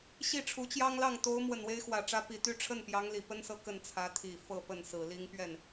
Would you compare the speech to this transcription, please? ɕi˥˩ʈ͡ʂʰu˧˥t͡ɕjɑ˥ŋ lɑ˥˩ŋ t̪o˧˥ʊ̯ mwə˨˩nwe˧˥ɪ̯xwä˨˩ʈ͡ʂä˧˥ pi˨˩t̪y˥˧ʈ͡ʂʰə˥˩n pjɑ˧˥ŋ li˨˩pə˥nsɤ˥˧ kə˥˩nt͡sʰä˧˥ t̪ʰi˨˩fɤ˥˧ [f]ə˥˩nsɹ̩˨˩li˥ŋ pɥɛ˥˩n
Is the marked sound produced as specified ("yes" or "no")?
no